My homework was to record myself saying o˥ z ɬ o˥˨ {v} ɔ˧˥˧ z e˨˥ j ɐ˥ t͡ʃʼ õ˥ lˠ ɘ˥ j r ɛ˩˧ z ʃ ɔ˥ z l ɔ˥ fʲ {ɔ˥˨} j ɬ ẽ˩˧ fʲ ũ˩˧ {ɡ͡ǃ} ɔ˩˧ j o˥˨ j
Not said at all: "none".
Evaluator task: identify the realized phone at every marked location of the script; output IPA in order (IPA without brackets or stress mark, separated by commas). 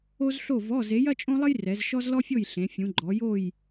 v, o˥˨, ɡ͡ǃ